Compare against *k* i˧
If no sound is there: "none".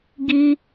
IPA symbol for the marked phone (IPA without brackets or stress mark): ɡ